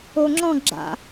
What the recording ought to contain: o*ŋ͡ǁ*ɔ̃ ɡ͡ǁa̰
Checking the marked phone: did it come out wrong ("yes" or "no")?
no